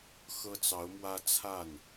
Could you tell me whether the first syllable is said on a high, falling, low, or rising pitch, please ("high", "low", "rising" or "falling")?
high